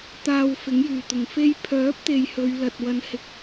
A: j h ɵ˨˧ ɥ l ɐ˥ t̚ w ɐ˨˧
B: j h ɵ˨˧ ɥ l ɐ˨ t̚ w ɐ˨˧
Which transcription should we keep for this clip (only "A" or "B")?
B